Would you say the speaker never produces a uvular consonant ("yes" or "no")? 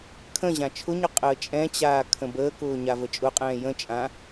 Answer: no